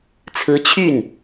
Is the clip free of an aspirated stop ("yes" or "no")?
no